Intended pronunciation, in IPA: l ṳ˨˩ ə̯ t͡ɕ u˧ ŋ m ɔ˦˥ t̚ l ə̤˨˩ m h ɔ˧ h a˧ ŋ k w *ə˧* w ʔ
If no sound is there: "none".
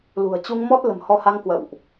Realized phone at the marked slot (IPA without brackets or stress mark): ə̰˧˨